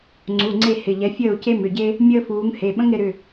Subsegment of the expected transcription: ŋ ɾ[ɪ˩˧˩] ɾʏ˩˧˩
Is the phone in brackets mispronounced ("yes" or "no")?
yes